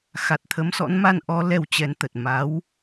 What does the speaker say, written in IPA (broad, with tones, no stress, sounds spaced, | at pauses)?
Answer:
x a˨˩ t̚ t̪ʰ ə˨˦ m s ɔ̰˧˥ n m a˧ n ʔ ɔ˨˦ l ɛ˧ w t͡ɕ ɛ˨˦ n t̪ ə˨˩ t̚ m a˨˦ w